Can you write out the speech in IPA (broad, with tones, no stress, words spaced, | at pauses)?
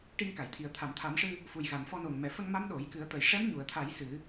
ʈi˧ŋka˨˩˨jt̪ʰi˨˩ə̯ t̪ʰa˨˩˨mt̪ʰa˨˩˦mʂɨ˧ | fu˨˩jɣa˨˩˨nfɔ˧no˨˩ŋ mɛ˨˩fə˧ŋma˧˥m ɗo˨˩˦jkɨ˨˩˦ə̯t̪ə˨˩j ʂɛ˧˥mɲu˨˩˨ə̯t̪ʰa˨˩˦j sɨ˨˩˦